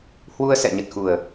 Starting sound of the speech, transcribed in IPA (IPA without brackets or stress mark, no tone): h